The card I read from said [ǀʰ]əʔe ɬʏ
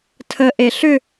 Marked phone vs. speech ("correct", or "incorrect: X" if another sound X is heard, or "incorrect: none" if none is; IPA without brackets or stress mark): incorrect: tʰ